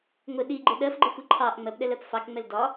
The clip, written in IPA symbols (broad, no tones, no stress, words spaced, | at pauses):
ŋʷɪ ɗiɡ͡ǃɪ ɗɜfɡ͡ǃɪxʷi ǃʰɑʔ ŋ͡mɜpɗɛlɜp fɑkŋ͡mɛl dɒ